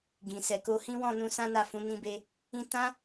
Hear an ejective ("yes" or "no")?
no